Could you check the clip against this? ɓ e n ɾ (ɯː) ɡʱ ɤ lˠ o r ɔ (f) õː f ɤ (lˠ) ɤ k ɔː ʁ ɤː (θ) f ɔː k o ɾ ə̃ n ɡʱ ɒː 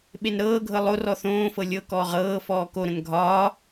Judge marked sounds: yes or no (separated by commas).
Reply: no, no, no, no